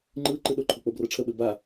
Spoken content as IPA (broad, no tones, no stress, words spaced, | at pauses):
ŋ͡ǃɯ ǃɯɗoǃʰo k͡pobrɤʈ͡ʂʰəɓɘ ba